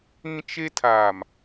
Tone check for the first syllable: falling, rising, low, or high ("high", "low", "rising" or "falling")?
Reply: high